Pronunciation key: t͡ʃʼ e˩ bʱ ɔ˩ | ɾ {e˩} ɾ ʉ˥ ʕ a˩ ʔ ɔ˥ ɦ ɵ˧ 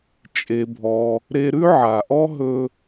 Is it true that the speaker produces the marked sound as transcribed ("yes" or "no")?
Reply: no